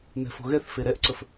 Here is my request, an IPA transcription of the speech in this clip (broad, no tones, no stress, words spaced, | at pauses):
nɛ̤fo̤ɣɛθfe ɾɛʔǀəf